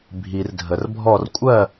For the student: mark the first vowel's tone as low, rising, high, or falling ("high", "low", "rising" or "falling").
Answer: low